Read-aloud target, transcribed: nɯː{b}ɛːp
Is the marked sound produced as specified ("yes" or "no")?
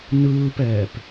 no